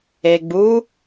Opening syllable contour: low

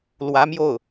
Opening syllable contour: rising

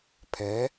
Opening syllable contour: rising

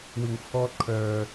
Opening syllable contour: low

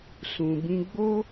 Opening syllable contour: low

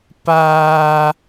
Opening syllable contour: high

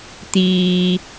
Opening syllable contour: low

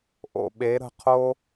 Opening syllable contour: low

